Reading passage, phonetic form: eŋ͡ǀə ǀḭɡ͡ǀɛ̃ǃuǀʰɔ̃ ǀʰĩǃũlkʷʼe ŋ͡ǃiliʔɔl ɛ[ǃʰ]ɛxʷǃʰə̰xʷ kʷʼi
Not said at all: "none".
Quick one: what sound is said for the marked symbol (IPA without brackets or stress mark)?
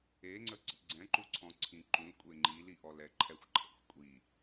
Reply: ǃʰ